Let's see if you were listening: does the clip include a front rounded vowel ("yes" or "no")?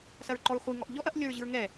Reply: no